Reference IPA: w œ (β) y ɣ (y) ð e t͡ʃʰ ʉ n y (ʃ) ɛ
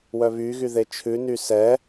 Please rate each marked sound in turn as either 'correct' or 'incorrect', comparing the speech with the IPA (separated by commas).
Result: correct, correct, incorrect